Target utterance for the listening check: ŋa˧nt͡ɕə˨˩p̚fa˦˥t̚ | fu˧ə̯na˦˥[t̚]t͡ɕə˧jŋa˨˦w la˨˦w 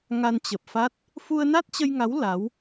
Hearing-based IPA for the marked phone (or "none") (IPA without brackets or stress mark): t̚